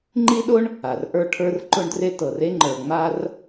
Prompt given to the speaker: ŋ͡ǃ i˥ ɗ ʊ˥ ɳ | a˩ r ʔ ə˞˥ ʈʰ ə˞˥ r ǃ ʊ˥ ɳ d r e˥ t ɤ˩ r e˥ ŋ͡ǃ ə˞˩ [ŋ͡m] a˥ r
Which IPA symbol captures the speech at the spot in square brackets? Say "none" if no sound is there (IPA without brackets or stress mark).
ŋ͡m